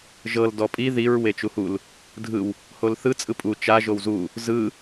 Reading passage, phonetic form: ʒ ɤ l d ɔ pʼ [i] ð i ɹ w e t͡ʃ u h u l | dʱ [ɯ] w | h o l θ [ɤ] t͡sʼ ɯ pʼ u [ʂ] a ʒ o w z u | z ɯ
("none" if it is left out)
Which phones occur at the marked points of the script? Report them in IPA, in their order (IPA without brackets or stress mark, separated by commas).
i, ɯ, ɯ, t͡ʃ